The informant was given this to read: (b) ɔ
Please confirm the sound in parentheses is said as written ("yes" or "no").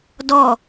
no